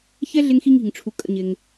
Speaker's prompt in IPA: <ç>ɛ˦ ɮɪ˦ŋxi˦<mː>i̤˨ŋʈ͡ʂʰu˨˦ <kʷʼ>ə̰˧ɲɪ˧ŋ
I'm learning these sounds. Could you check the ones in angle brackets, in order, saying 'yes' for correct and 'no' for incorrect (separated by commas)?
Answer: yes, no, no